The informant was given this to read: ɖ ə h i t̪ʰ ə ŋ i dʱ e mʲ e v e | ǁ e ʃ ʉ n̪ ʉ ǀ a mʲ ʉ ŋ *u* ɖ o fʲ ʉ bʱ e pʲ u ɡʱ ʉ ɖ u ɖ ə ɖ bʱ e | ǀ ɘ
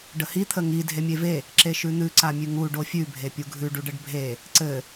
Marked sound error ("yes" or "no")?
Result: no